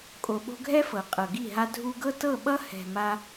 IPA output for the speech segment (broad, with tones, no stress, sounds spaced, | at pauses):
kʼ o˨ ɓ o̤˧ ɡʱ ɛ˦ f ɤ˨ qʼ ɤ˨ ɡ i˦˨ ɦ a˦ dʱ u˧ ɡ ɤ˦ t ɤ˦˨ ɓ ʌ˦ h ɛ̤˨ m a˧